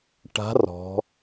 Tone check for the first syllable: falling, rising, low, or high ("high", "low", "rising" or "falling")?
rising